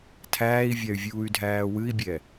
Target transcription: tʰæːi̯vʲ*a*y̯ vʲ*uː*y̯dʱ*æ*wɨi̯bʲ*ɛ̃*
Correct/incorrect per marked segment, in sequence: correct, correct, incorrect: æː, incorrect: ɛ

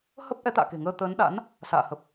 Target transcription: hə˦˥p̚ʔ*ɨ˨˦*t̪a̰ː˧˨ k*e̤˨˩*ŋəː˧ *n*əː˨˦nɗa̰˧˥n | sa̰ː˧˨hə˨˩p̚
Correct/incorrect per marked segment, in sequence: incorrect: ɛ˨˦, correct, incorrect: t̪

